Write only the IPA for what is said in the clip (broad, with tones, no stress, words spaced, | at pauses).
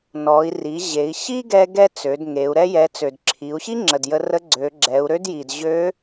nɔ˩˧i̯ ri˩˧ ʑe˩˧i̯ ɕi˥ɡɛ˧ ɡɛ˥t͡sø˩˧dŋe˩˧u̯ ɾɛ˧jɛ˩˧ t͡sø˩dǁʰi˩˧u̯ɕi˥ ŋ͡ǁə˩djə˧rə˧˥ ɡ͡ǀø˩˧ɡ͡ǁɛ˩˧u̯ ɾø˥dji˩d ʑø˧˥